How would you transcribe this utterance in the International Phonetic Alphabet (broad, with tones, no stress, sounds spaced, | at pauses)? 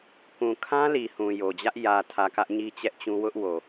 k ũ˨ kʰ ã˦ l i˨ h ũ˨ j o˨ d͡ʑ ä˦ ʔ j ä˨ tʰ ä˨ k ä˦ ʔ ɲ i˦ t͡ɕ ɛ˦ ʔ t͡ɕ ũ˦ w ʊ˦ ʔ w o˨